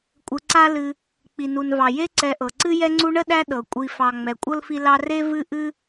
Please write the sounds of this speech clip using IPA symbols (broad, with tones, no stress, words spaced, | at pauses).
kʷʼɨ˨ǀa˦ lɨ˨ | k͡pi˩nu˩nvɑ˩ je˦ǀɛ˨ʔɤ˩ ǀɨ˦jɛ˦ŋ͡ǀu˦ɳə˥ ɗæ˦ ɗɤ˩kʷʼi˨ fɑ˨ŋ͡mɛ˨ kʷʼɤ˥lfi˦ lɑ˦re˥ vɨ˥ ʔɨ˥